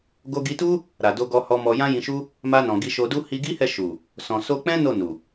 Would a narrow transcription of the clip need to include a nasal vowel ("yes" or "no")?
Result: yes